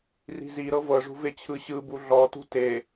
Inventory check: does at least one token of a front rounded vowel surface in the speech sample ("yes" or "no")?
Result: no